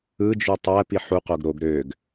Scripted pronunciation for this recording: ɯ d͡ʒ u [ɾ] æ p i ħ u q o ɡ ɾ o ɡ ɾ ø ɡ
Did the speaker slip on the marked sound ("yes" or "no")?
yes